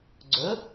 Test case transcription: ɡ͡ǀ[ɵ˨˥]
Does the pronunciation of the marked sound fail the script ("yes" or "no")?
no